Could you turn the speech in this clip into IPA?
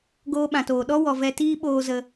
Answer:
ɡ oː˧ ɓ ã˨ t oː˨ ɗ ɔ˦ w ɔ˨ v ɛ˧ t iː˦ ɓ oː˧ z ə˧

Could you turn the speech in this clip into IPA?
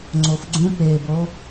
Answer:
ŋ͡ǀ o f ɡ͡ǀ ũ p e b o

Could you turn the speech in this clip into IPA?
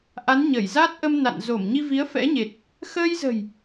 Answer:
ʔ a˨˦ n ɲ ə˧˩ j z a˦˥ t̚ ʔ ə˧ m n a̰˧˨ n z o˧˩ m ɲ i˧ v i˨˦ ə̯ f ɛ̰˧˥ ɲ e˨˩ t̚ | x əː˧ j z ə̤˨˩ j

